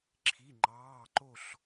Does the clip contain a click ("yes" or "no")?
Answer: yes